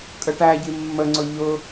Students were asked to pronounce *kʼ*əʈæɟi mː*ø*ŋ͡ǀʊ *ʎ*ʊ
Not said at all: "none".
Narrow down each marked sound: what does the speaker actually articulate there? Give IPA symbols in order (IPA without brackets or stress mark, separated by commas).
kʼ, ə, ʎ